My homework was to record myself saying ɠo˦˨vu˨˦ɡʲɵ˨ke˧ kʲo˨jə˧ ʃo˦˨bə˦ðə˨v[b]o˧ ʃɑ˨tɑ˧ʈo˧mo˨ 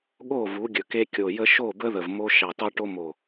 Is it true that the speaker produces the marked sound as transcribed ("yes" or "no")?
no